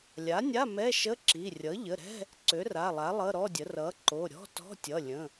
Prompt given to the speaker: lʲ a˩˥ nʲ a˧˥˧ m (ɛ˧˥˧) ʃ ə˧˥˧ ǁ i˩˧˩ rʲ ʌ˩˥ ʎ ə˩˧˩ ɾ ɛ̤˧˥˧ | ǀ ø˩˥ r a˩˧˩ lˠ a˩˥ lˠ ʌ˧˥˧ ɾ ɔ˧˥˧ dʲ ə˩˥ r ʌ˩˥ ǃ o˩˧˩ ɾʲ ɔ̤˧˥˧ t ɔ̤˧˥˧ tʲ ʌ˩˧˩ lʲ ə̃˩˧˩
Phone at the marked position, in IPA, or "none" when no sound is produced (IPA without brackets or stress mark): ɛ˧˥˧